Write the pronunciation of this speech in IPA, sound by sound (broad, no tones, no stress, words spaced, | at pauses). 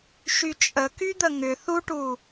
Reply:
ʃyt͡ʃʼəky d̪əŋʏ θuʈu